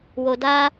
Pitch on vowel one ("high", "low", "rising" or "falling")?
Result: low